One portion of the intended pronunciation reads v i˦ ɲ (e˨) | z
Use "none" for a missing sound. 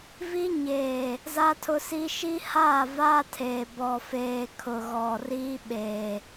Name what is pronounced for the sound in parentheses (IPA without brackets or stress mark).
eː˨